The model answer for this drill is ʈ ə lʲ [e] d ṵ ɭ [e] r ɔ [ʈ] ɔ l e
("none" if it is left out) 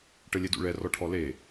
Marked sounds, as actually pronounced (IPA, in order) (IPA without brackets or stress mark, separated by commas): e, ɛ, ʈʰ